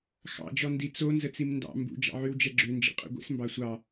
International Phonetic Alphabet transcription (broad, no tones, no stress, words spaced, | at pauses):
xɑ̰ d͡ʒɔndi t͡so nzət͡simndɑ̰ mbṵ d͡ʒɑ̰ʕywd͡ʒɛɡ͡ǁø nd͡ʒḭqʼḭɡʷḭs mbɑsʷɑ